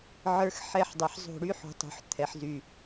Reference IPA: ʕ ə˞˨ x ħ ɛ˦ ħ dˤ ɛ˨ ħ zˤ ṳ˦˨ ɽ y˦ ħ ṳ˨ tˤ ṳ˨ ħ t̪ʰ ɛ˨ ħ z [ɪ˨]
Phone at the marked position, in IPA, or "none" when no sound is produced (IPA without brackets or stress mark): y˨